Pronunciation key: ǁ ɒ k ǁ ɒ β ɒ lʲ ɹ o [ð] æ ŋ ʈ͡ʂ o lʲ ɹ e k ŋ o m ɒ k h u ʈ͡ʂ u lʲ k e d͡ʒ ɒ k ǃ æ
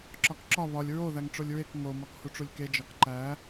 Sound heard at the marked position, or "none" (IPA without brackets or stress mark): ð